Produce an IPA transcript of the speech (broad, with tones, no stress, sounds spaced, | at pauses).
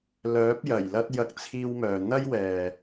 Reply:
l œː˨˥ p̚ j ɐ˨˩ j l ɐ˧ t̚ j ɐ˧ k̚ t͡sʰ iː˧ w m œː˨ n̪ ɐ˥ j w ɛː˨